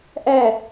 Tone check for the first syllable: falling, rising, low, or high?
falling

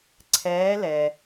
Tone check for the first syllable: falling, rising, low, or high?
rising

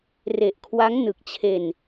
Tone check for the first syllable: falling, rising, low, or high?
low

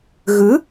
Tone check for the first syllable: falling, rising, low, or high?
rising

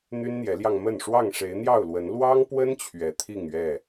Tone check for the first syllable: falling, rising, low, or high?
high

